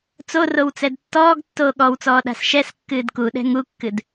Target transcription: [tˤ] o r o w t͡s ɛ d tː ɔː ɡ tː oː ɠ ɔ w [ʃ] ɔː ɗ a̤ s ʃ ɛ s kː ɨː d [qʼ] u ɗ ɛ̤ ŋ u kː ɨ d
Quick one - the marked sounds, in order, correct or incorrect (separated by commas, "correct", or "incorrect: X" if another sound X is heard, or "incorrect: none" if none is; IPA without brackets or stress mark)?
incorrect: t͡s, incorrect: t͡s, incorrect: k